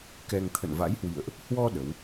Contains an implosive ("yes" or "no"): yes